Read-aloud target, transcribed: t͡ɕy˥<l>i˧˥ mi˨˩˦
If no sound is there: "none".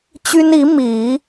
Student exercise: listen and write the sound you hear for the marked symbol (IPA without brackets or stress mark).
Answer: n